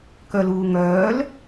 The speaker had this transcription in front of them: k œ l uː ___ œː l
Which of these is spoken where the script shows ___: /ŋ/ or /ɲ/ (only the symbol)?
ŋ